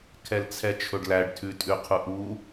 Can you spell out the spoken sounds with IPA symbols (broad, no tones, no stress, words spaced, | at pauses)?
kʰɛlt͡sʰɛt͡ʃʰɵɖlæɖ tʰʉtʼʉqʰuʔu